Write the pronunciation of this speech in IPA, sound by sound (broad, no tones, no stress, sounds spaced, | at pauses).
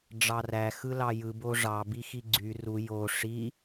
ɖ͡ʐ ɑ r æ x ɯ l ɑ j ɯ b o ʐ ɑ b i x i ɡ͡ǀ y r u j o ʂ i